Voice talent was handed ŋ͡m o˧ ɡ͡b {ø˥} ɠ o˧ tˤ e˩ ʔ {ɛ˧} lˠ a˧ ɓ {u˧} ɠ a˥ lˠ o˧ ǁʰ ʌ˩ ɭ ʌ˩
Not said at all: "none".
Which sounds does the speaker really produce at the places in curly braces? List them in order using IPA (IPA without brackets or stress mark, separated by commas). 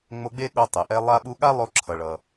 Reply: e˥, ɛ˧, u˧